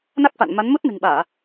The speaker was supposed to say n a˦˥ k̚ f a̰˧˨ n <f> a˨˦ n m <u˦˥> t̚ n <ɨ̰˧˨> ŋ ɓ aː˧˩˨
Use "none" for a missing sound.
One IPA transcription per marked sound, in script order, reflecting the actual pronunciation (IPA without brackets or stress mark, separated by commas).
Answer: m, u˦˥, ɨ̤˨˩